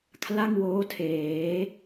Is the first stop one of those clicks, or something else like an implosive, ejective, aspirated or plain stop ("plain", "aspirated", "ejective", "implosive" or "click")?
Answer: aspirated